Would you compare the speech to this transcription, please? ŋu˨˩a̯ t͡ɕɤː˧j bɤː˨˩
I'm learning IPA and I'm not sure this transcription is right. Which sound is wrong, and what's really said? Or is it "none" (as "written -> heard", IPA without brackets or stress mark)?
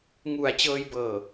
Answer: none